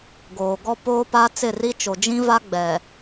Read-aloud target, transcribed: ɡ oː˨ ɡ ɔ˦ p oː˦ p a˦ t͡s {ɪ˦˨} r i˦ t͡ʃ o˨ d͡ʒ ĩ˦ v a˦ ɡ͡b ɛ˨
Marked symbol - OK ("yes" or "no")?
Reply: yes